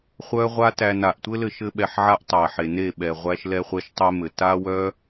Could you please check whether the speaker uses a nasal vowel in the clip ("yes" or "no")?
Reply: no